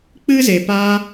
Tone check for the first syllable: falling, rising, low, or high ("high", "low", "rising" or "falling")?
high